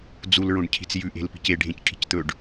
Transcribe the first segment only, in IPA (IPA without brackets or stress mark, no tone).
d͡z